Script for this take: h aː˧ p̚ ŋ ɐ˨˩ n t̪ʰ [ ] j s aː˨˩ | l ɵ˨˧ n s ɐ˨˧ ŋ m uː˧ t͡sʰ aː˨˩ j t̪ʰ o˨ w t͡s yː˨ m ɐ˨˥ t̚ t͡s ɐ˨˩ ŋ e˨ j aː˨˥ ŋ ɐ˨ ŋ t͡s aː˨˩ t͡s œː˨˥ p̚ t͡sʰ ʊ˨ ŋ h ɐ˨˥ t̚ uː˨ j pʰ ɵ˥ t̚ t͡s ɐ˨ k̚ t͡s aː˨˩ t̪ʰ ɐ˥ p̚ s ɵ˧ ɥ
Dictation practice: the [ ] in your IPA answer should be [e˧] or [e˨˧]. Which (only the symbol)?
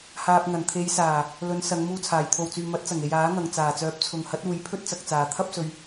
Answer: e˨˧